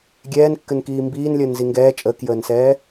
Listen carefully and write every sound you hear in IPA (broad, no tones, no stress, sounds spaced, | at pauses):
ɡʲ ɛː n kː ɘ n k iː m b iː n lʲ əː n z i ŋ ɡ ɛː t͡ʃʼ əː k j əː n s ɛː